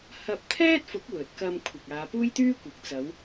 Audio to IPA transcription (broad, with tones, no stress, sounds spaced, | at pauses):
h ɐ˧ p̚ t̪ʰ ɛː˥ t̚ f ʊ˨˥ k̚ w ɵ˨ t̚ k ɐ˧ m kʷʰ ɪ˨ k̚ aː˨˧ p uː˥ j t̪ yː˥ kʷ ɪ˨ k̚ t͡s ɐ˨˧ w